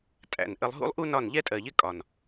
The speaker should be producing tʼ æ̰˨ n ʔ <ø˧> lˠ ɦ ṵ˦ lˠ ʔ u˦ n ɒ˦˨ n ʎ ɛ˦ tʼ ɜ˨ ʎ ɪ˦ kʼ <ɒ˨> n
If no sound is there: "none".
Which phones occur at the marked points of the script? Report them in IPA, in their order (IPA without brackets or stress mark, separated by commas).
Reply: ə˧, ɒ˨